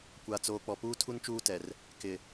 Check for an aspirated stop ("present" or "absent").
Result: present